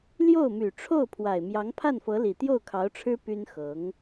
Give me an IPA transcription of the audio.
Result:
l j o˥˩ ʊ̯ m y˨˩ ʈ͡ʂʰ o˥˩ ʊ̯ pʰ w a˨˩ ɪ̯ m j ɑ˧˥ ŋ pʰ a˥˩ n f ɤ˧˥ l i˨˩ t̪ j o˥˩ ʊ̯ kʰ ɑ˧˥ ʊ̯ ʈ͡ʂʰ ɻ̩˥ p y˥ n x ɤ˧˥ ŋ

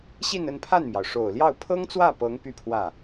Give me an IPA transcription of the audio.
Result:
ɕ i˥˧ n ə˥˧ n pʰ a˥˩ n m j ɑ˩ ʊ̯ ʂ o˨˩ ʊ̯ l j ɑ˥˩ ʊ̯ pʰ ɤ˥ ŋ t͡s w ä˥˩ p ɤ˧˥ ŋ p y˥˧ pʰ w ä˥˩

